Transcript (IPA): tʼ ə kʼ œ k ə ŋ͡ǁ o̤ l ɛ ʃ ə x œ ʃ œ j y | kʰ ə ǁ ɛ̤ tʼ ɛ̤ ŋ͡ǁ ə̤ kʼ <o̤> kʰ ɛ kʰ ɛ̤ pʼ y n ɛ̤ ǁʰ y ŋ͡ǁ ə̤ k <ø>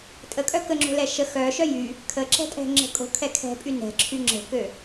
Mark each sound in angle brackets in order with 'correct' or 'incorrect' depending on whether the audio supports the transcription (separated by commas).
correct, correct